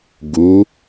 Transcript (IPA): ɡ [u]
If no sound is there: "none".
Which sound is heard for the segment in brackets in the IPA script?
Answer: u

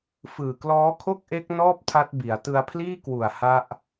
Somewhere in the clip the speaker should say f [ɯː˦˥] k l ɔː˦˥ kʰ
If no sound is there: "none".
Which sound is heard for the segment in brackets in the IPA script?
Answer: ɯː˨˩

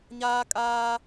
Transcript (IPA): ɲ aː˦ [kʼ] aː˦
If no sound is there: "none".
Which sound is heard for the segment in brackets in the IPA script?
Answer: kʼ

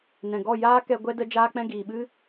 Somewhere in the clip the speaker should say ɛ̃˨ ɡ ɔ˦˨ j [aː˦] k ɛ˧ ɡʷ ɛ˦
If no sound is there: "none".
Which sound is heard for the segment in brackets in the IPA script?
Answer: aː˦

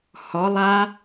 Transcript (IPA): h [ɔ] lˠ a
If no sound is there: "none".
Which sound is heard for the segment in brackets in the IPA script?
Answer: ɔ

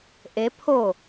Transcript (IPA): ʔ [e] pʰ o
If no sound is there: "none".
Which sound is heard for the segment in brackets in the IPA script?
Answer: e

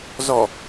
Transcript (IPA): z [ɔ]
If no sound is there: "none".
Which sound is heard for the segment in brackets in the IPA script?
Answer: ɔ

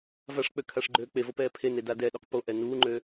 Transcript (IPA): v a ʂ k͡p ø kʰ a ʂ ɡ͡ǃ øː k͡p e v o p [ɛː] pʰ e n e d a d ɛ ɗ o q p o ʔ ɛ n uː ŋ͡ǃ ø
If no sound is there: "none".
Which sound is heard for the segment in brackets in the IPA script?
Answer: ɛː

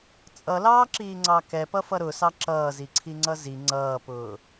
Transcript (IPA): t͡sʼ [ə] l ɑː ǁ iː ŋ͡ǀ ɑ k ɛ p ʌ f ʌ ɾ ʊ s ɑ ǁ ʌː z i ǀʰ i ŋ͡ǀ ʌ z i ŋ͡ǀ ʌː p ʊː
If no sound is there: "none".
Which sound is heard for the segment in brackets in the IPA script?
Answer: ʌ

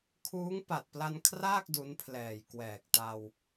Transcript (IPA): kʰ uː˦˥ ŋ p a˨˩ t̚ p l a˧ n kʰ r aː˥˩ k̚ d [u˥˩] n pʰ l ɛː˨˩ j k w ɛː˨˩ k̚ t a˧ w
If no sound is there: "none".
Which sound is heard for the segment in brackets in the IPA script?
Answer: u˦˥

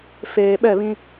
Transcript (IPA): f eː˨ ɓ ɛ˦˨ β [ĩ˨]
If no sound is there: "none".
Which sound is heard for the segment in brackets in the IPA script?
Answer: ĩ˦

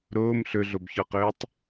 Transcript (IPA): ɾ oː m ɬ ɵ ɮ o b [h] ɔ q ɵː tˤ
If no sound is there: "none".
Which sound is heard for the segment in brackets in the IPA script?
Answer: ç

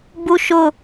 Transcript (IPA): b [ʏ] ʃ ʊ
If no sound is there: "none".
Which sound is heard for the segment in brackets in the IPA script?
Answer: u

